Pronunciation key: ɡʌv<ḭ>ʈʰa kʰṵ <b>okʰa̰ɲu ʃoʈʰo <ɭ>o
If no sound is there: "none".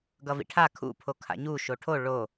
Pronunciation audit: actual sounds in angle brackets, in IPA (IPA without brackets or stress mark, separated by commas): ḭ, pʰ, ɭ